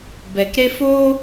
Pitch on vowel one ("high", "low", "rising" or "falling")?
low